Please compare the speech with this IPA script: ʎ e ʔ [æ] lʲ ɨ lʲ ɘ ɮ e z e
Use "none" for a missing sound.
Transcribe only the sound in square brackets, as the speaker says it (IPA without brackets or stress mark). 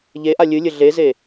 a